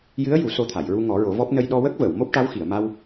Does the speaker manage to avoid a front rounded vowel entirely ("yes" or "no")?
yes